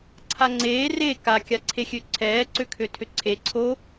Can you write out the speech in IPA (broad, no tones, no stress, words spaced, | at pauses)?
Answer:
ǀʰaŋ͡ǀeː re ka kʲaǀʰexʲøǀʰɛː ǀøkʰøtʰøǀʰe ǀʰo